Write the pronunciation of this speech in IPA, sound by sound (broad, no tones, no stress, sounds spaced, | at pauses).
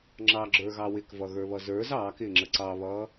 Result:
ŋ͡ǁ ɑ ɡ͡ǁ ə˞ ɣ ɑ w ɪ k v ʌ ɣ ə˞ β ʌ z ə˞ z ɑː k ɪː ŋ͡ǁ ə ǀ ɑ β ʌː